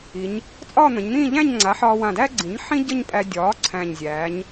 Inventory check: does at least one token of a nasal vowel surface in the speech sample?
yes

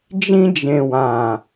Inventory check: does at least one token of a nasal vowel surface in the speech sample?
yes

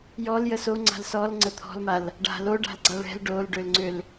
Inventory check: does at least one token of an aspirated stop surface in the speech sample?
yes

